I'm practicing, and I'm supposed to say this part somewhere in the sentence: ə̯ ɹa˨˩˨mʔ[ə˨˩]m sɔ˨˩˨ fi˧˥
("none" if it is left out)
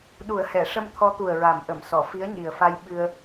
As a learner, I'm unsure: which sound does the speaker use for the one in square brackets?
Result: ə˨˩˨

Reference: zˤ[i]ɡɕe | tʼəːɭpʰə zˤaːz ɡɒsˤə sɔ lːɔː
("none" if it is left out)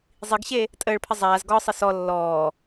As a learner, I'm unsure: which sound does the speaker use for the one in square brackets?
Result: i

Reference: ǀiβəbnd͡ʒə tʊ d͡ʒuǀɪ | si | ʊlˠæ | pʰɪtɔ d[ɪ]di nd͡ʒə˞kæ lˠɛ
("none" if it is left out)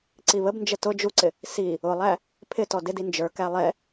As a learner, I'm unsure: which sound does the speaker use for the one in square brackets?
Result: ɪ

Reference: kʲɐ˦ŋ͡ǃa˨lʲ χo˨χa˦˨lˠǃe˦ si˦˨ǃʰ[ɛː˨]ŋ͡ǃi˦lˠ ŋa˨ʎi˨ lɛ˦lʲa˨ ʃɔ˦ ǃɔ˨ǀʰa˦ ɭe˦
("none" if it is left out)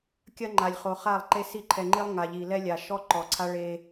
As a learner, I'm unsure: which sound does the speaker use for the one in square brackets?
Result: ɛ˨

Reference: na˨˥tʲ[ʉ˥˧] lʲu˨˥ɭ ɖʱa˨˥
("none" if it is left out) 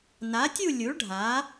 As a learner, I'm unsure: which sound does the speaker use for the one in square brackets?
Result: u˥˧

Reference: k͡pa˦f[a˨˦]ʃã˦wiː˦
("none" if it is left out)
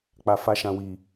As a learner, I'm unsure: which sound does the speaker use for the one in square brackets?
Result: a˦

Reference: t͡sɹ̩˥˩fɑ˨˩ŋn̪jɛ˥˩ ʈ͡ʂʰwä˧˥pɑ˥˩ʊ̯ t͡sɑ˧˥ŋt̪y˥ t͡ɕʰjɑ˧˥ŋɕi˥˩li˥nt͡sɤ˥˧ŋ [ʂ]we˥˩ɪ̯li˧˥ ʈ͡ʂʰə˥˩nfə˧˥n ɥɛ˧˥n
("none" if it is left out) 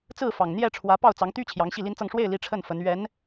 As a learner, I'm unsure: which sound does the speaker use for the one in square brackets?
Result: ʂ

